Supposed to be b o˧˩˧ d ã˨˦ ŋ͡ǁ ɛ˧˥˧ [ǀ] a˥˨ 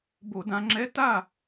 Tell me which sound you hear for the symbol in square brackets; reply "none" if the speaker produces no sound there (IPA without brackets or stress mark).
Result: t